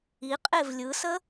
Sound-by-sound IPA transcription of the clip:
i qʼ e v lʲ ɯ s ə

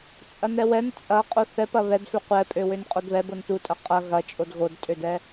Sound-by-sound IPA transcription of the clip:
t͡sʼ ɐ n ɛ w ɛ n t͡sʼ ɐ qʼ o θ ɛ p ɐ β ɛ d f ø qʷ ɛ pʼ ø w ø n qʼ o d β ɛ b o n t u tʼ ɐ qʼ ɐ ɣ ɐ t͡ʃʼ o d ɣ o d tʼ ø d ɛ

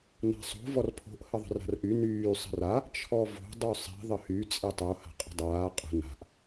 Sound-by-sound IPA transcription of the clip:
n a̤ sˤ o̤ v ɔ r pʰ o̤ ʔ h ə ðˤ ə̤ r a̤ r ʔ y n yː sˤ ə̤ r a | t͡ʃʰ ɔ v o̤ dˤ y sˤ i̤ ðˤ ə h y t͡sʼ i tˤ o h a̤ qʼ ə̤ dˤ aː qʼ ə̤ n a̤ ʔ

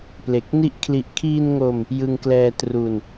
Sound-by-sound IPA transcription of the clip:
p l e˨˩ k̚ n i˦˥ ʔ kʰ l i˨˩ ʔ kʰ iː˧ n ŋ o˧ m | j ɯ˧ ŋ k l ɛː˧ t r u˧ n

